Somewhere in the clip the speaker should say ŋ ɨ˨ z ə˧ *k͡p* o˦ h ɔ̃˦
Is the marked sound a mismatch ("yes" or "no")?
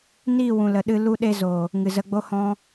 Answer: yes